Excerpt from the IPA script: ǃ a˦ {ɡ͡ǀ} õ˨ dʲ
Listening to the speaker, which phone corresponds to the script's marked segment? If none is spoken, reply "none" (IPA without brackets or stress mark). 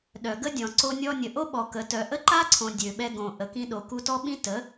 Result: ǀʰ